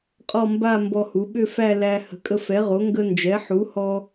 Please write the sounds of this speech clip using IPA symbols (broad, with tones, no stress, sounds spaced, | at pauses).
qʼ ɔ˥˧ m b a˥˧ m b ɔ˧ h u˩˥ ɓ ʏ˥˧ f æ˥˧ l æ˧ h ə̤˩˥ kʼ ə˧ f ɛ˩˥ ʁ o˩˥ ŋ ɡ ə˧ n d͡ʒ ɛ˩˥ ħ u˩˥ h ɔ˧